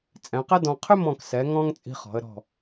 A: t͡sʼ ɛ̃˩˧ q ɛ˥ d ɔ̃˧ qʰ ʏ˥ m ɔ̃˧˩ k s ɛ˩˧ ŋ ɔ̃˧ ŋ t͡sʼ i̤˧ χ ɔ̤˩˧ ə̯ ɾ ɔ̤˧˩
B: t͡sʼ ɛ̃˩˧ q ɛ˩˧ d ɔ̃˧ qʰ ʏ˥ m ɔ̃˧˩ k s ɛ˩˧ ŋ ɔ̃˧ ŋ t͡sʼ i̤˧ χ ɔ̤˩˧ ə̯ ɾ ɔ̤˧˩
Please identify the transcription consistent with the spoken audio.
A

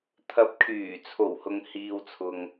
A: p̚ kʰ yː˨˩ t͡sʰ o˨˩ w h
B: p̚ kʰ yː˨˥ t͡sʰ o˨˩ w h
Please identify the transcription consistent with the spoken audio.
A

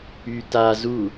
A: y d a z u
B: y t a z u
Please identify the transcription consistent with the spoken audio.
B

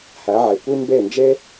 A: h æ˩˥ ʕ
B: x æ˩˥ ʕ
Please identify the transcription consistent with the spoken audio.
A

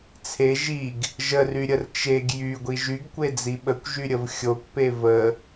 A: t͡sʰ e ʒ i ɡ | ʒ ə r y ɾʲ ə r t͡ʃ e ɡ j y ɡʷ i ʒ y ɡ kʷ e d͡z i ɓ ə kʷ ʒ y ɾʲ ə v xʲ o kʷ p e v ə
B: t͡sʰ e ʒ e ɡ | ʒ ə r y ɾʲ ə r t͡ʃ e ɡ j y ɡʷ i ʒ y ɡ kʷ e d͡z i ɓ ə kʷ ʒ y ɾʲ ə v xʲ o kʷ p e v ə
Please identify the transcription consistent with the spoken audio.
A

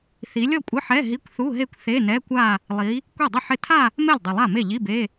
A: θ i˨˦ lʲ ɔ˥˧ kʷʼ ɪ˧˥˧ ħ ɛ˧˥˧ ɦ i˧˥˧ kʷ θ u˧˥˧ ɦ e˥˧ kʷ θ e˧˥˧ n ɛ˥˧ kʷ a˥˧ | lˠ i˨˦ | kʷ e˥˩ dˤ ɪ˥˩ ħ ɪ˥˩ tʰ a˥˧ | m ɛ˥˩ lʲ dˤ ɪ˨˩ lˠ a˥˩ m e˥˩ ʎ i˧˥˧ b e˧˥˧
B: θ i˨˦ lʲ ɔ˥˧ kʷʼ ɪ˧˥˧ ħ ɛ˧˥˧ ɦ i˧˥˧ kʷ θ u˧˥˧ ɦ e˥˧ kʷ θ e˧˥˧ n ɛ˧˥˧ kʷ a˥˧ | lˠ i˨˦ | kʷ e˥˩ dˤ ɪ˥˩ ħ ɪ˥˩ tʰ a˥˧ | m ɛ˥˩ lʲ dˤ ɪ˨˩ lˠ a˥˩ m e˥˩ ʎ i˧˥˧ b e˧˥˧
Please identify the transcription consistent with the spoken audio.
B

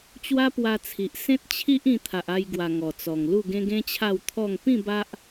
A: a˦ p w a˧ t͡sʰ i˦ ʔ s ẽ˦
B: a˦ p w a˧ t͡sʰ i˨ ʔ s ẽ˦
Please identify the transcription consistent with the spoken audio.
B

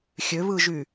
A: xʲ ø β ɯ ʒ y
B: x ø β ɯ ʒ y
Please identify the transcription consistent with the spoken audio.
A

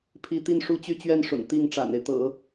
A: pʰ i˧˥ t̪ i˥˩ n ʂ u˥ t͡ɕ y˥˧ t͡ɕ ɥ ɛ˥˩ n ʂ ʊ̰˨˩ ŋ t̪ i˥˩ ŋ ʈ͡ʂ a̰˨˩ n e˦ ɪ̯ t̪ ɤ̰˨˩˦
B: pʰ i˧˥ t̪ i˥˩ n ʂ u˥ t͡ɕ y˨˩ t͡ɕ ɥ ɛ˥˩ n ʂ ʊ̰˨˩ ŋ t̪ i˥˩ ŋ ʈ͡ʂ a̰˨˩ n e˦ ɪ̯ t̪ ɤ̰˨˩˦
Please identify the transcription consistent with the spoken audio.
A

